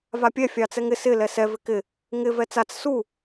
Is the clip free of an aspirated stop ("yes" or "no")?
yes